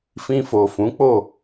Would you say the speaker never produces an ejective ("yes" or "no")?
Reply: yes